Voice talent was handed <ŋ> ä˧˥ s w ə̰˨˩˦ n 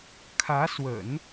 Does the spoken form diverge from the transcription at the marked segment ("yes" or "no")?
yes